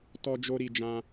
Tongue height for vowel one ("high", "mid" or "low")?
mid